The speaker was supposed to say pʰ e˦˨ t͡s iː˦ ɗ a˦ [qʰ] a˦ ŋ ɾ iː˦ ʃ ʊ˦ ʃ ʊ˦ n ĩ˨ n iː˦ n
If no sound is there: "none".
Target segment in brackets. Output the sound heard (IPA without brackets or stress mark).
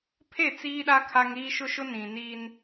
kʰ